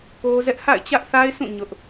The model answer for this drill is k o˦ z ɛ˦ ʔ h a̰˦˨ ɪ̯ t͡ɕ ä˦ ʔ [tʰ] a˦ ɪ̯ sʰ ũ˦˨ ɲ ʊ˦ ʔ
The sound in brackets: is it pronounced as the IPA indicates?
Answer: no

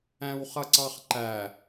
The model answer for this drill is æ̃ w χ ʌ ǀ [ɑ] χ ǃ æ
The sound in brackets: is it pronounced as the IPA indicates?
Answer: yes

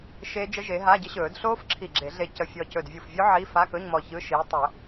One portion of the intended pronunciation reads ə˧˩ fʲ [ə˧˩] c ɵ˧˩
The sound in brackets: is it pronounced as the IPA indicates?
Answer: no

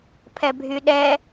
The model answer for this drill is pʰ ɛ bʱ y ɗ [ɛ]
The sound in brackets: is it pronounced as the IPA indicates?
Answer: yes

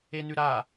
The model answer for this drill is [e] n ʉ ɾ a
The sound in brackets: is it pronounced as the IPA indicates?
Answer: yes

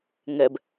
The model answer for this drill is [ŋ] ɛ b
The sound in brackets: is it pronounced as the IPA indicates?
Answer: yes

